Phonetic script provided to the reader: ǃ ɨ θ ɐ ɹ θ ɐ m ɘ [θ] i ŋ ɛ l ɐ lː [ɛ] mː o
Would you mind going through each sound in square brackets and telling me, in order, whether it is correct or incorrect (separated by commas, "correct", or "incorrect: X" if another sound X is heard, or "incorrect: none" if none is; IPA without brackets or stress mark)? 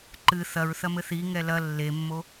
correct, incorrect: e